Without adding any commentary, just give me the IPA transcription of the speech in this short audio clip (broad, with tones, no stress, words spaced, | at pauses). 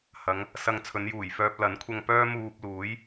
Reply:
hɐ˨˧ŋ | sɐ˧ŋt͡sʰɵ˨˧njuː˨˩jfœː˧p̚ lɐ˨˥nkʷʰɐ˧ŋpœː˥ muː˧p̚luː˨˥j